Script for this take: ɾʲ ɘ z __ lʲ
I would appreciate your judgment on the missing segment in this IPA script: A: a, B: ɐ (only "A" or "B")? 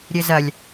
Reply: B